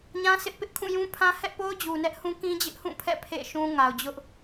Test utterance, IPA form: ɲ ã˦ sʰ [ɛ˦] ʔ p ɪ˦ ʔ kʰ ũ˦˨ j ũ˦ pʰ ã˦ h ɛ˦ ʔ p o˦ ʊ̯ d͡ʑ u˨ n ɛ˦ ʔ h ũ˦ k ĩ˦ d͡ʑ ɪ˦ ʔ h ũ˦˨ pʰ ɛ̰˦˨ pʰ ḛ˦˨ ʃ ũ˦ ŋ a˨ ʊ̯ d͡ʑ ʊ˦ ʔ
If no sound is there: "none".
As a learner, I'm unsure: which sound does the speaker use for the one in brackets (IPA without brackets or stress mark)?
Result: ɪ˦